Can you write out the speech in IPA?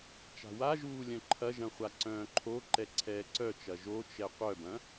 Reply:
t͡ʃ a̤ w a ʒ uː lʲ œ̃ ǃʰ ɐ ʒ ɐ̃ χʷ a ǀ œ̃ː ǃʰ o ǃ ɛ ǀʰ ɛː ǀ œ t͡ʃ ɐ ʒ o t͡ʃ ɛ qʷ œ b ɐ̃

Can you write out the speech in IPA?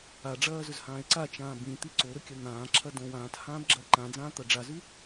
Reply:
a ɖ͡ʐ ɐː z ɵ z h ãː e̯ ǀ a t͡ʃ ãː b ĩ t̪ i ǀ o ɾ ɵ kʲ ɐ n̪ ãː ǁʰ ɐ d õ w ãː t h ãː b ɡ͡ǁ ɐː ǃ ã d͡z ãː t̪ ɐ ɖ͡ʐ a z ʉ

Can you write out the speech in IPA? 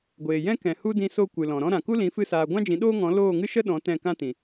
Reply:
ɡʷ eː˨ j ɛ̃˦ k ɛ̃˨ h u˦ d ĩ˧ s o˦˨ kʷ ɨ˨ l ɔ̃˨ ɾ ɔ̃˦ ɾ ã˨ k u˦ l ĩ˨˦ f ɨ˦ s aː˧ ɡʷ ã˦ d͡ʒ ĩ˨˦ ɗ oː˦ ŋ ɔ̃˨˦ l oː˦˨ ŋ ɨ˦ ʃ ə˦ ɗ ɔ̃˨˦ t ɛ̃˦˨ k ã˦ t ĩ˨

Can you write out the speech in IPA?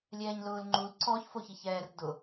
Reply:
lʲ ɛː ɲ l ʊː l ŋ͡ǃ u l ǀ ɔ ç f o ç i ç ɛː r d ʊ

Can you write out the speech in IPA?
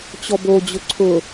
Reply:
t͡ɕ ɔ b o d͡ʑ ʊ ǀʰ ʊ

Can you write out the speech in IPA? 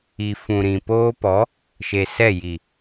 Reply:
i˨ f ũ˨ ɾ ĩ˨ p oː˦ p ɔ˨˦ | ʃ e˨ s ɛ˦˨ j i˨

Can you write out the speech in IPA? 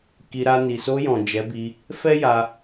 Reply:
k i˧ ɾ a˧ n i˨ s o˧ j ɔ̃˨ d͡ʒ ɛ˨˦ b i˧ | f ɛ˦ j a˧

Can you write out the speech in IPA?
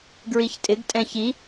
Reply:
ɡ ɹ i ç tʼ ɪ ɡ tʼ ɛ̃ ç i

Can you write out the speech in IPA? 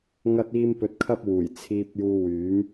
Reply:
ŋ ɐ˥ t̚ iː˥ m p ɵ˧ t̚ kʰ ɐ˥ p̚ w uː˨˩ j t͡sʰ iː˧ p̚ j uː˧ w yː˨˥ m

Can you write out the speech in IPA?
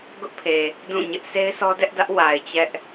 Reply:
ɡ ʊ˦ ʔ pʰ e˨ | d ũ˦˨ ɲ ɪ˦ ʔ sʰ e˦ ɪ̯ sʰ ɔ˦ d ɛ˦ ʔ d ä˦ ʔ w a˨ ɪ̯ t͡ɕ ɛ˦ ʔ

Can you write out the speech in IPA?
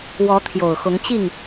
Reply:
w ɔ˨˦ t̪ʰ j o˨˩ ʊ̯ x ʊ˨˦ ŋ t͡ɕ i˥˨ ŋ

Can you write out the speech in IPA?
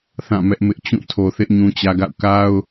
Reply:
θ ã˦˨ m ɛ˦ ʔ m ɪ˦ ʔ t͡ɕ ũ˦˨ tʰ o˨ θ ɪ˦ ʔ ɲ ũ˦ t͡ɕ ä˦ ɡ a̰˦˨ ʊ̯ k a˦ ʊ̯

